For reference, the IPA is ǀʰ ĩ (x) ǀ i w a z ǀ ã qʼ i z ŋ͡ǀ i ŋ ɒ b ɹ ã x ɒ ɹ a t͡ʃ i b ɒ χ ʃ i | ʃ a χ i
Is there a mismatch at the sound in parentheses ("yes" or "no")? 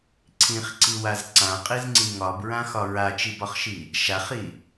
yes